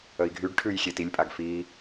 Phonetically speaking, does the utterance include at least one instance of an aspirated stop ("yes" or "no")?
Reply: yes